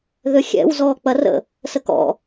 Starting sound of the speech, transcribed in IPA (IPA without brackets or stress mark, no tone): ð